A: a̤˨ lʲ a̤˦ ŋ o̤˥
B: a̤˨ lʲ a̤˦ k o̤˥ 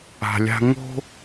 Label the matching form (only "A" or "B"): A